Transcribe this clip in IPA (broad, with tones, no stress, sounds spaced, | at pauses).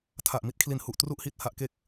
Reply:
tʰ a˨˩ ʔ m i˦˥ t̚ kʰ l i˨˩ n h u˨˩ ʔ t r u˥˩ ʔ h i˥˩ t̚ h a˦˥ ʔ k e˦˥ k̚